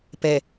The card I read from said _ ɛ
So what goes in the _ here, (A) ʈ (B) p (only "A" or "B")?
B